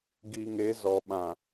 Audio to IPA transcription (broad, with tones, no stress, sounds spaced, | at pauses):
ɡ i˨ ŋ e˨˦ z ɔ˨ ɓ ã˨